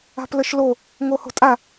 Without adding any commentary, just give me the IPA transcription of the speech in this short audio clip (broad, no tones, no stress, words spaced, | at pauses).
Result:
a̤pləʃlo | ŋoho̤tʼa